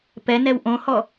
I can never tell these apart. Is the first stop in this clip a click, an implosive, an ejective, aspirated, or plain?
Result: plain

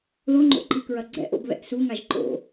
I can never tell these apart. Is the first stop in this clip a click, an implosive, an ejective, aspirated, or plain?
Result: click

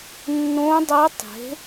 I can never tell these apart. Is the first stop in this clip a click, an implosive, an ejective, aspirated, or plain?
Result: plain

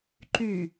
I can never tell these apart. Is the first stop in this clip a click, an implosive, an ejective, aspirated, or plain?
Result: click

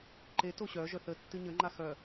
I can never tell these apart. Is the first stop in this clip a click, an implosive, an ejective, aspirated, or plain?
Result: click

